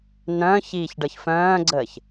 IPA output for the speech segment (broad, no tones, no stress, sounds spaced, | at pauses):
n œ̃ː ç iː ç ɖ ɤ ç f œ̃ː ɡ͡ǀ əː ç